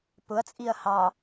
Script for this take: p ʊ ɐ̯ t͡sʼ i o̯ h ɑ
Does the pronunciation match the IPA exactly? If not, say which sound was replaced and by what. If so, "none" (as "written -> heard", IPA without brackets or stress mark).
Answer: o̯ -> ɐ̯